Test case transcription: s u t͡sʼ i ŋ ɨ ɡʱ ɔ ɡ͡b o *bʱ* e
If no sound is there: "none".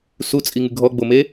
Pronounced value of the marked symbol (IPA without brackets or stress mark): m